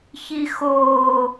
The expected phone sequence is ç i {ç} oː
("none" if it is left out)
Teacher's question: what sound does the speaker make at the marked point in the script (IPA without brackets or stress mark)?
x